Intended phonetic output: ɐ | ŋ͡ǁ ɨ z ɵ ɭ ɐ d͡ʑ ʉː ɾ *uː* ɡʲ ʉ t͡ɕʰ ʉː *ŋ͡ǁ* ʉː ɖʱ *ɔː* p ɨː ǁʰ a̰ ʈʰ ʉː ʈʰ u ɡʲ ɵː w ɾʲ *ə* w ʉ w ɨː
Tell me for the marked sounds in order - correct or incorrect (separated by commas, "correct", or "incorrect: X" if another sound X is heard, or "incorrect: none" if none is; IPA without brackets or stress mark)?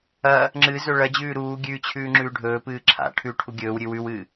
correct, correct, incorrect: ɵː, incorrect: ʉ